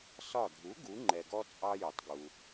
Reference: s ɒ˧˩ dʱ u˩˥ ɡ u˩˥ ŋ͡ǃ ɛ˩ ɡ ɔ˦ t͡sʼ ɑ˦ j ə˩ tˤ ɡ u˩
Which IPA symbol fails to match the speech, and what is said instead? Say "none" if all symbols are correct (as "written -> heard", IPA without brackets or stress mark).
none